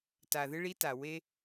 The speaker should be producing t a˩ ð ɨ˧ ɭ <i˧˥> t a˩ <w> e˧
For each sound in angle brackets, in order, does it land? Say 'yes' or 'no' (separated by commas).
yes, yes